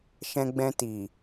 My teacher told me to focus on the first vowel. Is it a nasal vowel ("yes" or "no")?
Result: yes